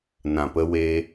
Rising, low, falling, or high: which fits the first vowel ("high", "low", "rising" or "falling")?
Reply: low